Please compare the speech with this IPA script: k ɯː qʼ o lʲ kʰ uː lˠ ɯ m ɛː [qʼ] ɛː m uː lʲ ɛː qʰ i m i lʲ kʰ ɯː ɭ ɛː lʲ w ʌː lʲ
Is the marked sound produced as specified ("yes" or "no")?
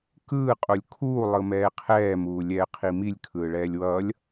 no